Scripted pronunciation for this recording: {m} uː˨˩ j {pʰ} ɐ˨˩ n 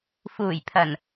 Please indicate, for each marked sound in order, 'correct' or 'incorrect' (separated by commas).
incorrect, correct